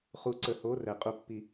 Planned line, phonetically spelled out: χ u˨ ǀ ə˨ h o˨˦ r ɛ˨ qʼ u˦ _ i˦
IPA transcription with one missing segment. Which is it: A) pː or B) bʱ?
A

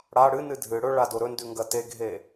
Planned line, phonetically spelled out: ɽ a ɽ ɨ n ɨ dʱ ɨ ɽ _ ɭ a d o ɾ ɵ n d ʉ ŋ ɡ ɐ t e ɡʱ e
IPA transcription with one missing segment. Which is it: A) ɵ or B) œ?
A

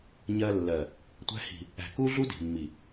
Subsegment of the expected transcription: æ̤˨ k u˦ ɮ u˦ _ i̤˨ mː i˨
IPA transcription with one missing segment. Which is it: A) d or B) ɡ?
A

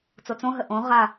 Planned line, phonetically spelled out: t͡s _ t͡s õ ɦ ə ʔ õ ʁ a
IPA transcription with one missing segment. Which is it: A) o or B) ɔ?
A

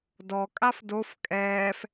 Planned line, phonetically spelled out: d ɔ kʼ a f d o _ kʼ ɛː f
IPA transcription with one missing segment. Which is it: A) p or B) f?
B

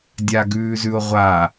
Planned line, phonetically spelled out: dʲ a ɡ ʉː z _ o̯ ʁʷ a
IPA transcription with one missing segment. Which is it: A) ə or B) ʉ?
B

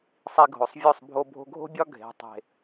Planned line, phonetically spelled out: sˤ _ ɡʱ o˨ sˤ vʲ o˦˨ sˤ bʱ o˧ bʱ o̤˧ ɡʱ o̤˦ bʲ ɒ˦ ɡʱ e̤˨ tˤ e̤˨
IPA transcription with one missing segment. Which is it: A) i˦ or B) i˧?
B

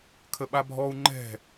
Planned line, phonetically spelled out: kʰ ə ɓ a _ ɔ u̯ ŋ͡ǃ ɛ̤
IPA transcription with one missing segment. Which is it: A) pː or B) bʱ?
B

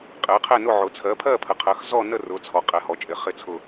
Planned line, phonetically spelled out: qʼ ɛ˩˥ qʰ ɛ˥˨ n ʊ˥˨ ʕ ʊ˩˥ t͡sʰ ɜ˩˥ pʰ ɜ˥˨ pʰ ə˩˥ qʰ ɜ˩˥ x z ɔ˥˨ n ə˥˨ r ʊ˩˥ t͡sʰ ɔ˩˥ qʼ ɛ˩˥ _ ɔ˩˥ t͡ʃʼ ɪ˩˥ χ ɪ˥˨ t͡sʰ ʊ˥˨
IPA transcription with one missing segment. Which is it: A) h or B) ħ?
A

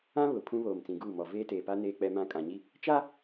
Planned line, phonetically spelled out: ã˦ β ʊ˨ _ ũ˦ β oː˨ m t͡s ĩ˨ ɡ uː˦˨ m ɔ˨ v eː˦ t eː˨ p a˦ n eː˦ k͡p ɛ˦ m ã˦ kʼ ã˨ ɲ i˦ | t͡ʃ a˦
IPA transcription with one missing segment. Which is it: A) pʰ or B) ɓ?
A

